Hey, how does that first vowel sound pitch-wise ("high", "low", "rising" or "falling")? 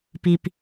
low